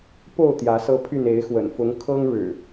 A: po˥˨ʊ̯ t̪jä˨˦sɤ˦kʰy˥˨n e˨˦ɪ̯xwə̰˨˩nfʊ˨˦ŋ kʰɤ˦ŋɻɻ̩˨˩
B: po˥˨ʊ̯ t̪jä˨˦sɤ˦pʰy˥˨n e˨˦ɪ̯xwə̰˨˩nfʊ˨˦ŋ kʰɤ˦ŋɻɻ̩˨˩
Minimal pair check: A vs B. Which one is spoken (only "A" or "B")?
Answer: B